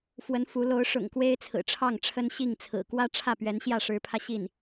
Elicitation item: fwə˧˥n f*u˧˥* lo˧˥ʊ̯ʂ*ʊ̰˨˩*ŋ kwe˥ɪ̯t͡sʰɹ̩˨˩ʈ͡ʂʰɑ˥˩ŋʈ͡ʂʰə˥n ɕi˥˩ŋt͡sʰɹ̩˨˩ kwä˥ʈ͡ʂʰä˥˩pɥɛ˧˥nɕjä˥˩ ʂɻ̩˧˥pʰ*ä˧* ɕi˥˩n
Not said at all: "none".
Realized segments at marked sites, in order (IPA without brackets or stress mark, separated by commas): u˧˥, ʊ̰˨˩, ä˧